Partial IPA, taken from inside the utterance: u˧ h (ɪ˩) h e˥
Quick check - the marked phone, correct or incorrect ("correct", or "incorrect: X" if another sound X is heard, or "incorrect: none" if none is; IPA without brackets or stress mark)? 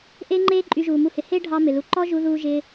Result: correct